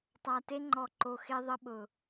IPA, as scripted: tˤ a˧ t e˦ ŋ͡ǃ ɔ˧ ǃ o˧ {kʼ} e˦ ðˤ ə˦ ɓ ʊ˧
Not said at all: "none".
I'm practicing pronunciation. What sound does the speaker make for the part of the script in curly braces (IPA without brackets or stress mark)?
x